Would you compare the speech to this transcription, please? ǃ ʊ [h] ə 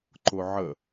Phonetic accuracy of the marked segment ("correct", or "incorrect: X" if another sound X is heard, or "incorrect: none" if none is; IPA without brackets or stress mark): incorrect: ʕ